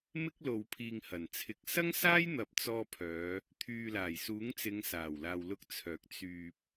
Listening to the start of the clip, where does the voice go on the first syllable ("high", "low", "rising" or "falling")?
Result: high